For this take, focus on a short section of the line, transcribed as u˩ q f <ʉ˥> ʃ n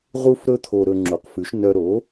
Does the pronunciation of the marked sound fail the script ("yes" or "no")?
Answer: yes